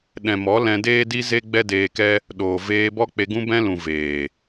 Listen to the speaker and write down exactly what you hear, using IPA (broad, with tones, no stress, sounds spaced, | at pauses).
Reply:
ɗ ɛ̃˨ m ɔ˨˦ l ɛ̃˧ d eː˦ d i˦ z e˦ ɡ͡b ɛ˦ d eː˧ k ɛ˦ | ɗ oː˨ v eː˧ b ɔ˦ k͡p e˧ ɡ ũ˦ b ɛ̃˦ l ũ˨ v eː˨